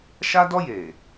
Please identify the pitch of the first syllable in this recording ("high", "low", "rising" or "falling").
high